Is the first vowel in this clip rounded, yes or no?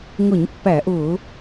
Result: yes